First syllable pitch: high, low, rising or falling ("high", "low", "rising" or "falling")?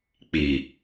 low